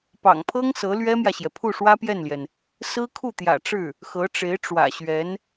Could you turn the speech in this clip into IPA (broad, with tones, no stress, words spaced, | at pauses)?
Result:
pɑ̰˨˩ŋpʰɤ˥ŋ sɤ˧˥lɥɛ˥mjä˨ɕjɛ˩ pʰu˥˩ʂwä˥pjɛ˥˩nljɛ˩n | sɹ̩˥kʰu˥˩t̪jä̰˨˩ ʈ͡ʂɻ̩˥˩ | xɤ˧˥ʈ͡ʂe˧˥ɪ̯ʈ͡ʂwä̰˨˩ɕɥɛ˧˥n